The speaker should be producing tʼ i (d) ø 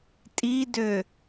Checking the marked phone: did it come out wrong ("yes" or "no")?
no